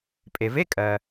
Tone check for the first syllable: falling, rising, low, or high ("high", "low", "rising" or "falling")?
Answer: low